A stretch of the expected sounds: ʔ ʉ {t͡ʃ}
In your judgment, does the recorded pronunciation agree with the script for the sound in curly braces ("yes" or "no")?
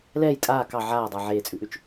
yes